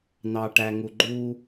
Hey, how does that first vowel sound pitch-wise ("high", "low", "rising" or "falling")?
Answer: low